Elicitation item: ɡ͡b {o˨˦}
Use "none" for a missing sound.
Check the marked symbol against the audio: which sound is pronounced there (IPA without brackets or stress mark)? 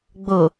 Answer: o˨